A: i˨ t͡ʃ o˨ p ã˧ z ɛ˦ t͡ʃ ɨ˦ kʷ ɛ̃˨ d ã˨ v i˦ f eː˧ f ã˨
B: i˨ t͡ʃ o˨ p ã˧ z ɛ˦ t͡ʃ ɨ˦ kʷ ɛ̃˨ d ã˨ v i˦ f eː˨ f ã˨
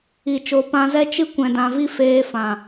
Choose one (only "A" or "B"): A